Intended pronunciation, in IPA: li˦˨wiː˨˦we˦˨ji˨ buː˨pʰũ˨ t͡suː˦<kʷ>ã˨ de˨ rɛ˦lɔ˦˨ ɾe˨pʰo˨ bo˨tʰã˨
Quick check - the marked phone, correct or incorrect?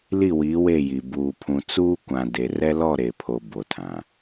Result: correct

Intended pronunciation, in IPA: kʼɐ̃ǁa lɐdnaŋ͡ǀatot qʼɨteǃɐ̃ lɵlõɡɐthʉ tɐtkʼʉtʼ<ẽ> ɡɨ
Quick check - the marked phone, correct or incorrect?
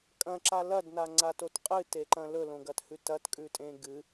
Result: correct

